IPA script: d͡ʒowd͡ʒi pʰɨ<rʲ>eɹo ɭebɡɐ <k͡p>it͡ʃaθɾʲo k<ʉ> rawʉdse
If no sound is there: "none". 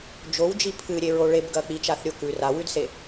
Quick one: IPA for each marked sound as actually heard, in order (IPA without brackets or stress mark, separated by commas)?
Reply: ɾʲ, k͡p, ʉ